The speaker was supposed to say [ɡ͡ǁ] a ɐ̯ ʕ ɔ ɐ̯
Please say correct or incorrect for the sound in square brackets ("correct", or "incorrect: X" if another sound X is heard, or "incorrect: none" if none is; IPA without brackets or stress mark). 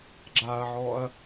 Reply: correct